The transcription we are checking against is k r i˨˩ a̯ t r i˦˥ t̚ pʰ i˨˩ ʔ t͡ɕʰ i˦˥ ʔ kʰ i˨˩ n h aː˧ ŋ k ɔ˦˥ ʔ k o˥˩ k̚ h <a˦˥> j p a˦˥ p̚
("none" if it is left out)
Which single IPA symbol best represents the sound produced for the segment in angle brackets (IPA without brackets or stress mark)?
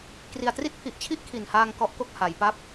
a˩˦